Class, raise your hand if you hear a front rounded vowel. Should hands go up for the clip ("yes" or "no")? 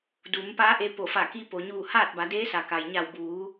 no